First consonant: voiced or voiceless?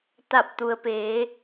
voiceless